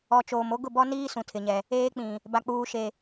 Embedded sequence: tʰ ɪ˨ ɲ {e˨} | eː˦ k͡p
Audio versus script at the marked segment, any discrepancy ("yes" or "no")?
yes